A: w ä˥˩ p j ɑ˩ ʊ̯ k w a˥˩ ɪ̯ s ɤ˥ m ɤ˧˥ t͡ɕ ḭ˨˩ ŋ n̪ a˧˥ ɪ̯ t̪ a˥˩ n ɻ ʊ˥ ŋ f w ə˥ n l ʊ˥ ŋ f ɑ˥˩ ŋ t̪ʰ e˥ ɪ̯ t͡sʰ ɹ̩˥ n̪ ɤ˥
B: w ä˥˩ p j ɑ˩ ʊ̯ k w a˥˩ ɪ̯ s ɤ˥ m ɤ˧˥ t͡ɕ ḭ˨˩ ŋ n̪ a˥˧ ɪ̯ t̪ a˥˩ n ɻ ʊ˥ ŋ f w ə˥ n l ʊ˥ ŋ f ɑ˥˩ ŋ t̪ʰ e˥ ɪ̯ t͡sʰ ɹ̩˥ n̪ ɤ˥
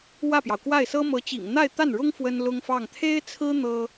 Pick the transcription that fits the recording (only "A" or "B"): B